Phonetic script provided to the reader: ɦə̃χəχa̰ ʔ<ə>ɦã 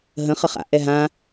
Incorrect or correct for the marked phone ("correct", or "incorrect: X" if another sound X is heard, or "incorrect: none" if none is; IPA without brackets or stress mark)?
incorrect: ɛ